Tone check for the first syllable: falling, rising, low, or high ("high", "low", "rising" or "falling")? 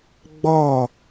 falling